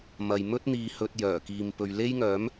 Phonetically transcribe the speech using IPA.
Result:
mɐ˨j mɵ˥t̚ n̪iː˨hɵ˨t̚ jœː˨˩kiː˨m pɵ˨ɥle˥jŋœː˨˥m

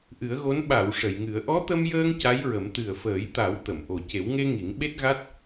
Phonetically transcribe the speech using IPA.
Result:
ʔɨ˨˩˦ə̯ɣo˧˥n ɓa˨˩˨w ʂə˨˩˨jŋɨ˨˩˦ə̯ ʔɔ˧˥t̪ə˧mjəː˧ŋ ca˧˥jɹə˨˩˦m t̪ɨ˨˩ə̯fəː˨˩˦jt̪a˨˩˦w t̪ə˨˩˨mʔo˨˩ ce˨˩˦wŋe˧ ŋi˨˩˦ŋ ɓe˦˥t̚ɣa˦˥t̚

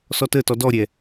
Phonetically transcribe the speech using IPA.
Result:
sɔtətɔ dɔɾʲɛ

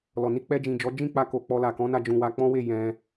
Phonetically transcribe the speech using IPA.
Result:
lɔ˨ni˧k͡pɛ˧d͡ʒĩ˨ d͡ʒɔ˨˦ d͡ʒĩ˦˨k͡pa˧ ko˨k͡pɔ˧ la˨kɔ̃˨˦na˧ d͡ʒũ˨wa˧k͡pɔ̃˦we˦˨ jɛ̃˧

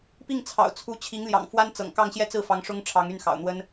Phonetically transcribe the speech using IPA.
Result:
pi˥˩ŋt͡sʰɑ̰˨˩ʊ̯t͡sʰu˧˥ t͡ɕʰi˧˥ŋljɑ̰˨˩ŋ fwa˥nt͡sɤ̰˨˩ŋ kɑ˥˧ŋɕjɛ˥˧t͡sɹ̩˥˩fɑ˧˥ŋ ʂʊ˥ŋʈ͡ʂʰɑ˧˥ŋy˥˩nxɑ̰˨˩ʊ̯ n̪wə˥n

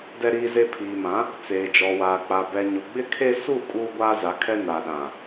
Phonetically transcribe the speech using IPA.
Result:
dɛ˦ɾiː˦ze˦ pʰiː˨mã˨˦ | t͡seː˨d͡ʒɔ˨waː˨ k͡pa˨bɛ˨ ɲʊ˨ɡ͡bɪ˦kʰe˦ su˦˨ kʼuː˦ɡʷaː˦ za˨˦kʰɛ˦ na˨ɗã˨

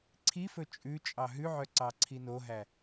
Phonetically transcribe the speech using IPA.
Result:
ǀʰifɵ t͡ʃʼʉ t͡ʃʼɑɦʉʕœ ǀɑǀʰinoɦæ

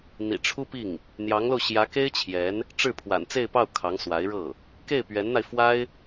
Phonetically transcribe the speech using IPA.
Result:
n̪ḭ˨˩ ʈ͡ʂʰu˥pi˥˩ŋ | n̪jɑ˧˥ŋlo˧ʊ̯ ɕjä˧˥ke˥ɪ̯t͡ɕʰjɛ˧˥n | ʈ͡ʂɻ̩˥˩pʰwa̰˨˩n t͡se˥˧ɪ̯pɑ˥˩ʊ̯ kʰɑ˧˥ŋswa˧˥ɪ̯ɻɤ˥˩ | ke˥˩ɪ̯pɥɛ˧˥nn̪a˧ɪ̯fwa˥ɪ̯

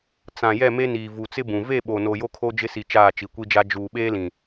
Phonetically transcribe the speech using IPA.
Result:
t͡sã˨ jɛ˦˨me˦niː˨ vu˨t͡sɪ˦bũ˨ ve˦˨ɓo˨no˨ jo˦kʰo˦d͡ʒɪ˦si˨ t͡ʃaː˦˨t͡ʃi˨kʷi˦d͡ʒa˦ d͡ʒuː˨ɓeː˦lĩ˨

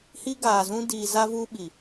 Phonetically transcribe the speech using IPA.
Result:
hi˦ɡaː˨zũ˦ diː˨za˦vuː˦ ɓi˨

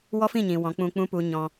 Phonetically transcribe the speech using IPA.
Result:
wɔ˦fĩ˦˨ɲĩ˨ wɔ̃˨˦k͡pũ˧k͡pũ˦ pu˧ɲɔ̃˧

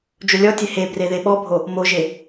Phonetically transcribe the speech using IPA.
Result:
d͡ʒolʲɔtʲe he breðeɓɔbʱo | moʒe

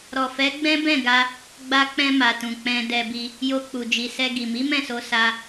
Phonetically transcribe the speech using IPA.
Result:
ɾɔ˨fɛ˨˦ ɡ͡bɛ̃˦bɛ̃˦˨ɡa˧ | ɡ͡ba˧k͡pɛ̃˧ma˨tũ˨ k͡pɛ̃˧dɛ˧bi˧ | jo˧k͡pu˨d͡ʒi˨ sɛ˧ɡi˨ mi˨˦mɛ̃˦˨so˧ sa˧

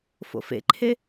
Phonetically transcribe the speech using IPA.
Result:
fo̰fḛǃʰe

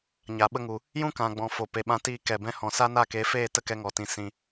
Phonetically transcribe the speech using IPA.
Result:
ɲa˨ɓə˧ŋu˨ | jũ˦kã˨ɡ͡bɔ̃˨ fo˨pe˨ɓã˧tiː˧ kɛ˨bɛ̃˧ hɔ̃˨sa˦na˦˨ ke˨˦feː˦˨ tə˦kɛ˧ŋɔ˨tĩ˨ sĩ˨

